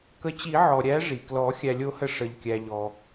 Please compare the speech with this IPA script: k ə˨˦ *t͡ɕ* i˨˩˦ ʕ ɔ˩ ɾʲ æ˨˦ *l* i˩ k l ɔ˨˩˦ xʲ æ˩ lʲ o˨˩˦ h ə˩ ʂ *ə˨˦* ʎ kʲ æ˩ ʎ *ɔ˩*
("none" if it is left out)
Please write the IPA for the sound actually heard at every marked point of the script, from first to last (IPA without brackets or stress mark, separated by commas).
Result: t͡ɕ, ʐ, ə˩, ɔ˩